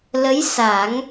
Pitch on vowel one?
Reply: rising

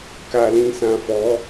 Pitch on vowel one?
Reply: low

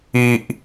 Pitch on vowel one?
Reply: high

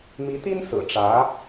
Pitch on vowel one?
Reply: rising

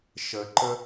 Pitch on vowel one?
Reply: low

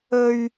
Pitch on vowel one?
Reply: high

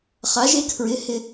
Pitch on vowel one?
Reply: rising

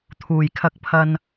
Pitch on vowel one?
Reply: low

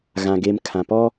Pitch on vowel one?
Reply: low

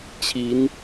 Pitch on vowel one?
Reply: rising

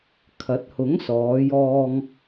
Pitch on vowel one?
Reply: rising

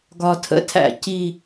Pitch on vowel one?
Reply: low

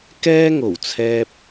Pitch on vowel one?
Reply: high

